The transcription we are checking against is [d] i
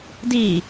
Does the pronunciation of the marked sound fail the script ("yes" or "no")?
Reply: no